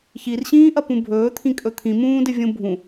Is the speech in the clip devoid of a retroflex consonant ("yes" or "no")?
yes